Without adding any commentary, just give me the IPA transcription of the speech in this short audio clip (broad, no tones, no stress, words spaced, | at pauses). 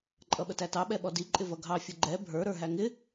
ǃʼʌɓətætɑ ɓɛɓɔdi ǃʼɪvʌɡʱɑ fʲəɡ͡ǃɛ bʱə˞ ɾə˞ɦæŋɪ